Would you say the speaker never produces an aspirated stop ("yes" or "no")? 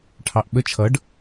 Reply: no